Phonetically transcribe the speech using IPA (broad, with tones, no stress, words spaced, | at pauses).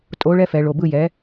tʼo˨˦ ɭɛ˦fɛ˧˩˧ɭo˩˧˩ bɯ˦˨jɛ˨˦